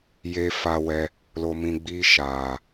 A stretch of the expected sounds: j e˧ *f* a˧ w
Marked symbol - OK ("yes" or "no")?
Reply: yes